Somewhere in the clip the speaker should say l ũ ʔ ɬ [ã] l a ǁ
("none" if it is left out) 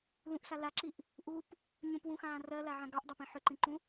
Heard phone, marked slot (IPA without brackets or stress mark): a